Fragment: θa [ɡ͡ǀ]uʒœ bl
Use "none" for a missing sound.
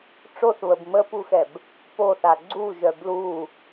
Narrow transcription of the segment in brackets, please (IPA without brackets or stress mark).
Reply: ɡ͡ǀ